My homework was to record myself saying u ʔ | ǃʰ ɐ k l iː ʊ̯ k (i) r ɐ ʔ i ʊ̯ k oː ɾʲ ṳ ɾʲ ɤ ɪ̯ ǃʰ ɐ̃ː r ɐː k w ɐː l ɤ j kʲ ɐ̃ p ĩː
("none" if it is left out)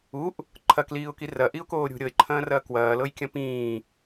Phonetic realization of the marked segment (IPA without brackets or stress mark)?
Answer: i